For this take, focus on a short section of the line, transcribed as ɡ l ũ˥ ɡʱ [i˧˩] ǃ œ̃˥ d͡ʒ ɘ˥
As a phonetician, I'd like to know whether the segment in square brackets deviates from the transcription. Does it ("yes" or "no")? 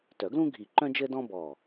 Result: no